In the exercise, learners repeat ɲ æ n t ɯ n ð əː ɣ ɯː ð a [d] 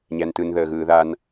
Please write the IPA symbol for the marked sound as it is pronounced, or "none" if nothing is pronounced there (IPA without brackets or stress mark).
n